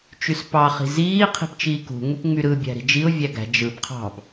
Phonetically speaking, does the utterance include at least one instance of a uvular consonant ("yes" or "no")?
yes